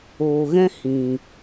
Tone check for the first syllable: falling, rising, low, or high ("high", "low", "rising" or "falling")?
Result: low